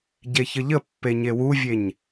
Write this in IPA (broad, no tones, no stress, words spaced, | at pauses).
ɟeçəʎəpːe ɲewuvʲeɲ